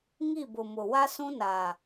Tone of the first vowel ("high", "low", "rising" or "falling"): falling